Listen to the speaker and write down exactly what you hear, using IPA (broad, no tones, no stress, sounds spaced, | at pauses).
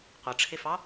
qʷ ʌ ʈ͡ʂʰ ɪ f ɑ